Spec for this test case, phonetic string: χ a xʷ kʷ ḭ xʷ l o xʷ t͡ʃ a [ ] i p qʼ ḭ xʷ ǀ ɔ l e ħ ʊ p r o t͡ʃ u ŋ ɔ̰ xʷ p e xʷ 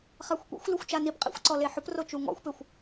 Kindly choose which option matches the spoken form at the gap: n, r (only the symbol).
n